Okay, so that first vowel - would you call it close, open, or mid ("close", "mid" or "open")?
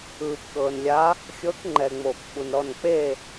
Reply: close